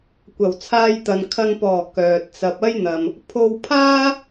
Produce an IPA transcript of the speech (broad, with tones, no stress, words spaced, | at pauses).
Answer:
kʷɐ˨˩wt͡sʰaː˧jt̪ɐ˨n kʰɐ˧npɔː˨˩ kœː˨t̚t͡sɐ˧p̚ ɐ˥jn̪ɐ˨m | pʰo˧wpʰaː˥